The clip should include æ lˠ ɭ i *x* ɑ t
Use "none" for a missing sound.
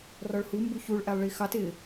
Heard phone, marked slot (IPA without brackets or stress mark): x